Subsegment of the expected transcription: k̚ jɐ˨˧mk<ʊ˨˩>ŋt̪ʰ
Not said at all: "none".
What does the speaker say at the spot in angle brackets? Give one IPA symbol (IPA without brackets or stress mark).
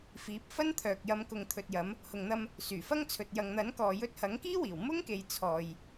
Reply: ʊ˨